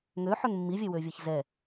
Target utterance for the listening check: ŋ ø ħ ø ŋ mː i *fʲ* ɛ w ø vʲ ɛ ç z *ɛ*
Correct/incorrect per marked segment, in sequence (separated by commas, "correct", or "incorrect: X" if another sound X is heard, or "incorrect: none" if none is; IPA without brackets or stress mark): incorrect: vʲ, correct